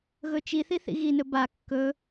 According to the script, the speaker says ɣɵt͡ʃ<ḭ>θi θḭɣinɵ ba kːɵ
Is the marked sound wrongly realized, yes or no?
yes